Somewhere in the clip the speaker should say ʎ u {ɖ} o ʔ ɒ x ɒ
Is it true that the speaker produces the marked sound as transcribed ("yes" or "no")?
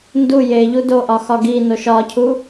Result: no